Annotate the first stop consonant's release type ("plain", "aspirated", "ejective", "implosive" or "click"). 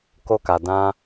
plain